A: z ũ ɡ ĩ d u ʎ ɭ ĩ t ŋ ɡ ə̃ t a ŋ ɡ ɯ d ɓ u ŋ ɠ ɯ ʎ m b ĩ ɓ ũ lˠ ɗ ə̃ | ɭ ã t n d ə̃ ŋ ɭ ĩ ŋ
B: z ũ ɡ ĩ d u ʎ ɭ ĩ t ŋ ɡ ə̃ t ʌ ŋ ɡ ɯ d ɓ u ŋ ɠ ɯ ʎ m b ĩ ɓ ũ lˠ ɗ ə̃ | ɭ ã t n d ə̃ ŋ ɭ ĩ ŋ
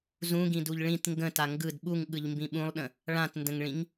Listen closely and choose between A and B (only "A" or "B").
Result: A